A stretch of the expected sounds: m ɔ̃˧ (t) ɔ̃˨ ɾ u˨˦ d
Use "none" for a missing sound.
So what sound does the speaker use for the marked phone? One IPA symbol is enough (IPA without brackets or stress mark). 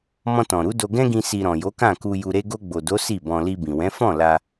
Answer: t